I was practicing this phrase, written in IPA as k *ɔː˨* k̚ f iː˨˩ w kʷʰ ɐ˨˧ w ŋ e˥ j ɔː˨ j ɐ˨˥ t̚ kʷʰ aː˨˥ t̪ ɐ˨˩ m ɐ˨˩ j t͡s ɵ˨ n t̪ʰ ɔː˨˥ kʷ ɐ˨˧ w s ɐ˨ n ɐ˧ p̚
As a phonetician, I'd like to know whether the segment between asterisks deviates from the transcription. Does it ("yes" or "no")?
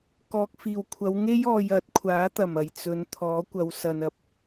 no